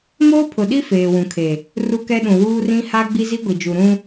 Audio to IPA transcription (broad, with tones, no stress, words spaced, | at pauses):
moː˦pʰʊ˨ɗi˦ feː˨wũ˨kʰe˨ | ru˦kɛ˦ɗũ˨ wuː˦rĩ˦ ha˦ ɡ͡bi˦zi˦ɡʷi˨d͡ʒu˨ ɾũ˦